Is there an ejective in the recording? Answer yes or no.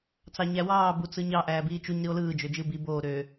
no